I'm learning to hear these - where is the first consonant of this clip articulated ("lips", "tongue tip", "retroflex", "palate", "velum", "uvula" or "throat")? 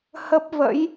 throat